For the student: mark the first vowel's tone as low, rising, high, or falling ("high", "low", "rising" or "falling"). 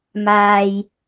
low